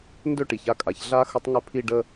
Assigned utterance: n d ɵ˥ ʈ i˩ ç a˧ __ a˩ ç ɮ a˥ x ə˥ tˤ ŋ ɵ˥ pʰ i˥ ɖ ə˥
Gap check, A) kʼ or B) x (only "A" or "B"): A